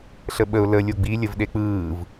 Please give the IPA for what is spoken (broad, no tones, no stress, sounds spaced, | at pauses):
ɬ ə ɓ ə ʊ̯ l ə lʲ o ɡ͡b i lʲ ə v ɗ e k͡p ɯː v